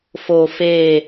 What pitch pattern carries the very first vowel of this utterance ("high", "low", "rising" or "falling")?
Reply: low